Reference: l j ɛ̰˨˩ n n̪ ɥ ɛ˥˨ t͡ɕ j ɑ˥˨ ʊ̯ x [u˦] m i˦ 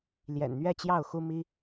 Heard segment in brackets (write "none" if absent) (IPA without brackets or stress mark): u˦